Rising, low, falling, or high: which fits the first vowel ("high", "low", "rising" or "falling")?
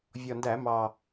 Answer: low